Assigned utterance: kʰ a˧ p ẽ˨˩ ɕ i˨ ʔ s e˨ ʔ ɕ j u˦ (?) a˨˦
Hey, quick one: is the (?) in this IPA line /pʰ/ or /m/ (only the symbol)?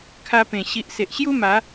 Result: m